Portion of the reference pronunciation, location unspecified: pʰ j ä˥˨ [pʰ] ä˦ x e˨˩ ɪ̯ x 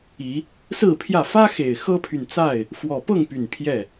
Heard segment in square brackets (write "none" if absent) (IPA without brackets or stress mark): f